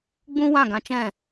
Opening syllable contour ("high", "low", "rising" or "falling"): high